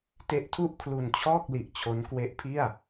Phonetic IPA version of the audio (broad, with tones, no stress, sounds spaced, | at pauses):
t e˦˥ ʔ tʰ u˥˩ ʔ kʰ l u˧ n t͡ɕʰ ɔː˥˩ k̚ l i˨˩ ʔ t͡ɕʰ o˦˥ n k w e˦˥ ʔ pʰ i˥˩ a̯